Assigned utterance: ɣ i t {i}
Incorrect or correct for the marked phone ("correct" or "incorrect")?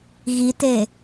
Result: incorrect